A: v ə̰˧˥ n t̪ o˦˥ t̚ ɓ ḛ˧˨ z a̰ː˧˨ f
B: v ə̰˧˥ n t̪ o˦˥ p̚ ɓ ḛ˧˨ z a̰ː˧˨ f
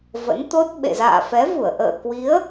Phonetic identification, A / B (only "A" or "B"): A